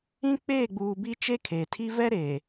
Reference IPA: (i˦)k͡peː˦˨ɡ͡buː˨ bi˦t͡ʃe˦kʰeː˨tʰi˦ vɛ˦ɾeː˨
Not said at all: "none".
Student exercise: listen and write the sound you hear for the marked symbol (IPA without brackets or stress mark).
ĩ˦